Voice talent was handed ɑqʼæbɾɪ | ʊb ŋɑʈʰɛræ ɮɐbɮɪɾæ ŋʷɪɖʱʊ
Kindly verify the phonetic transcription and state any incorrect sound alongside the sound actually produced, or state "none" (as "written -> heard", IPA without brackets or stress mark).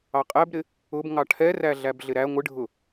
ɐ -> æ